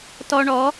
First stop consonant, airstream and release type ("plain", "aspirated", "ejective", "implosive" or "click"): plain